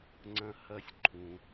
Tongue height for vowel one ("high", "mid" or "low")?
low